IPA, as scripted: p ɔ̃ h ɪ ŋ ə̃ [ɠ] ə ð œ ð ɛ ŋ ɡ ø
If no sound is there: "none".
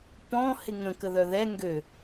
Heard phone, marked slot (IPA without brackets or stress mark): k